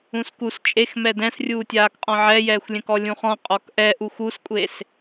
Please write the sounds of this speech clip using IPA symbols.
ũ s k u s t͡ʃʼ e x m ɛ d ɛ̃ s rʲ uː tʲ aː k qʼ ɔ̃ ʕ ɛ j ɛː xʷ lʲ ɛ̃ k ɔ lʲ ũ χ ɔ̃ qʼ ɔ k ʔ ɛ ʔ u xʷ u s kʷʼ e s

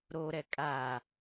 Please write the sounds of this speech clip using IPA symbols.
ɾ o ɾ ɛ kʼ a

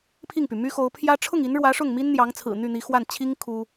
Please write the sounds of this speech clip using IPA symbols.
pʰ i˥˩ ŋ p y˩ m y˥ x o˧˥ ʊ̯ pʰ j ä˥ ʈ͡ʂʰ ʊ˥˩ ŋ i˧˥ n ɻ w ä˧˥ ʂ ʊ˥˩ ŋ m i˥ n n̪ j ɑ˧˥ ŋ t͡sʰ ɹ̩˨˩ n̪ y˥˩ n̪ i˧˥ x w a˥˩ n t͡ɕʰ i˥ ŋ kʰ u˥

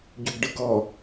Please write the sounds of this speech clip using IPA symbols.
ɟ u ɡ ɖ ɯ ɡ ɔ

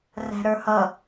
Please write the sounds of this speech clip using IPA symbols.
r æ̤ ɾ ə˞ h ʌ

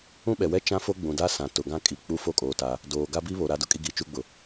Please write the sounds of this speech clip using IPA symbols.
ũ˦ ɓ ɛ˨ w ɛ˦ t͡ʃ ã˦ f o˦ ɡ͡b ũ˨ d a˦ s ã˨ t ʊ˨ ɡ ã˦ kʼ i˨ k͡p u˦ f o˦ kʼ oː˨ t a˨ | d oː˨ ɡ a˦ b i˦ β o˨ ɾ a˨ d ʊ˨ kʼ i˨ ɡ i˨ t͡ʃ u˦ ɡ͡b ʊ˨

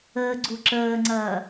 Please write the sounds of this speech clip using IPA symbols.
əː ɡ͡ǀ u ǁ əː ŋ͡ǀ ɐː

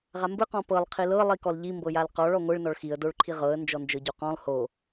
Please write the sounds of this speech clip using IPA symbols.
ʁ a m b ɯ q ɔ̃ p ɤ lˠ qʰ i l ɤ lˠ i k ɔ l ʎ i m b ɤ j a l q ɔ ɭ ɔ ŋʷ ɯ ɭ n ɔ ɭ x i ə̯ d o ɭ ǃʰ i ʁ ɤ ə̯ n d͡ʒ ɔ n d͡ʒ ɤ ɟ o q ɔ̃ lˠ h o

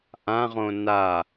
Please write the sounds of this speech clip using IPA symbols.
ʔ ã ʁ õ n a

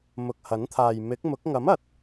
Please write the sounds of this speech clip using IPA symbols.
m ʊ˨ k̚ h ɐ˨˥ n t̪ʰ aː˨ j m ɪ˨˥ k̚ m ʊ˨˥ k̚ ŋ ɐ˨˥ m ɐ˨ t̚

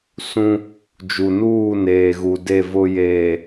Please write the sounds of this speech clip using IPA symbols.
s ũ˦ | d͡ʒ u˨ n uː˦˨ n eː˨ ɣ u˨ d e˦˨ v ʊ˦ j eː˨

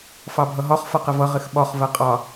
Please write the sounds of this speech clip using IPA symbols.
f ɑ bʱ ʌ ɦ ɒ χ f ʌ q ɪ v ʌ ʁ ɪ x ɓ ɒ χ v ɜ qʼ ɑ

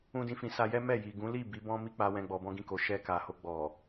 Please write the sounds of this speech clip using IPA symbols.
ũ˦ d ĩ˦ f ĩ˧ s a˧ j ɛ˦ m ɛ˦˨ j i˨ ɡ ũ˨˦ l i˦˨ b i˨˦ b ɔ̃˦ m i˦ k͡p a˧ w ɛ̃˧ ɡ͡b ɔ˧ b ɔ̃˦ ɡ ĩ˦˨ k o˨ ʃ ɛ˧ k a˨ h o˧ ɡ͡b ɔ˨

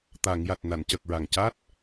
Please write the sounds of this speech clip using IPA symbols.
t̪ a˨˩˨ ŋ j a˨˩ t̚ n a˨˩˨ n c ə˨˩ k̚ ɹ a˨˩ ŋ c a˦˥ t̚

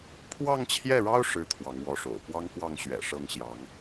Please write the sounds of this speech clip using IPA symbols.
pʰ w ɑ˥˧ ŋ t͡ɕʰ j ɛ˥˩ ɻ ɑ˥ ʊ̯ ʂ ɻ̩˥ t̪ʰ w ɑ˧˥ ŋ w ɔ˧˥ ʂ o̰˨˩ ʊ̯ p w ɑ˥ ŋ k w ɑ˥˩ ŋ ɕ ɥ ɛ̰˨˩ ʂ ɤ˥˩ ŋ ɕ j ɑ˧˥ ŋ

